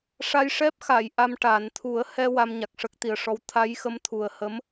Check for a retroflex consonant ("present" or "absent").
present